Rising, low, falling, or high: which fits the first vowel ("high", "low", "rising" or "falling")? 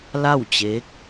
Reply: falling